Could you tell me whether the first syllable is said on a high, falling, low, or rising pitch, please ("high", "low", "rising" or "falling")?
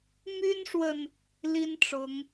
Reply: high